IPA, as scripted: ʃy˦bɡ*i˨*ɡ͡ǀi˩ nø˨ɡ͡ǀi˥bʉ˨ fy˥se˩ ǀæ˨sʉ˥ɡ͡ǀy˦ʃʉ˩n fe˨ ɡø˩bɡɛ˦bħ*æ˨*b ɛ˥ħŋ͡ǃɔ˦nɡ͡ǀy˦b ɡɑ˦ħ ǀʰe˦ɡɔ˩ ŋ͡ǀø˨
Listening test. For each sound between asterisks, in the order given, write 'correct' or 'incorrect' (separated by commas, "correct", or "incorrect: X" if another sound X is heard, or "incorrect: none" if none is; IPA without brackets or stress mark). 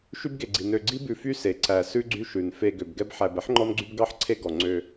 incorrect: e˨, correct